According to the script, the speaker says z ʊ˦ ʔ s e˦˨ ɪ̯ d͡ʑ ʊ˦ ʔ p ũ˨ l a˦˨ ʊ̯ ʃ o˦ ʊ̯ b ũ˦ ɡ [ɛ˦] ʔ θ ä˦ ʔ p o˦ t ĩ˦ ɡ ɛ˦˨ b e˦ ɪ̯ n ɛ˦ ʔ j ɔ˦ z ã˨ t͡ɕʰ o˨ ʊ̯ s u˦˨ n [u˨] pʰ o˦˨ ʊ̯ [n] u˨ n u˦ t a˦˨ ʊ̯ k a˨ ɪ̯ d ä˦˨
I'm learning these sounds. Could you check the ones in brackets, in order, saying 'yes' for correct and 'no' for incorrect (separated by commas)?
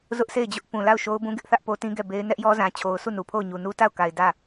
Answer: no, yes, no